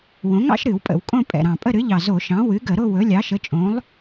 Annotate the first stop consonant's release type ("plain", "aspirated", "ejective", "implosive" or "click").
ejective